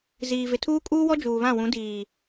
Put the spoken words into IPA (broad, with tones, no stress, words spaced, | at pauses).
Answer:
ziː˨vɪ˨ tʰuː˦kʼuː˦wɔ˦ d͡ʒuː˨βã˦˨wũ˨˦diː˨